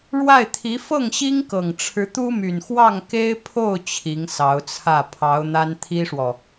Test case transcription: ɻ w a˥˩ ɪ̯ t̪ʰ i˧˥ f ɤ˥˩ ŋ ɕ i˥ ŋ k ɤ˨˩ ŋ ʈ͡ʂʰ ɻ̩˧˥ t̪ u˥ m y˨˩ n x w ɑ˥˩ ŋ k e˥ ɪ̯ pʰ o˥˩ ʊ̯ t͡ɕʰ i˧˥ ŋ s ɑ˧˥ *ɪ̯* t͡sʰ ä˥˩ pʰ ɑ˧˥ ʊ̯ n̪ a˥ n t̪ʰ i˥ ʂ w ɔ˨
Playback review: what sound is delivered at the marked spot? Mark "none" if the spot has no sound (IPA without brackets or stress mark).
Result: ʊ̯